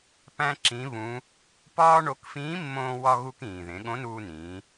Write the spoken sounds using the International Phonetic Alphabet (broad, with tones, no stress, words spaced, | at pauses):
pæ̃˥ǁĩ˧˥βũ˧˥ | pɒː˥ɳo˧˥k fĩː˧˥mːõː˧wɒ˧ ɣu˧kĩː˩ðẽ˩˧ ɠõ˧˥nuː˧nĩː˩˧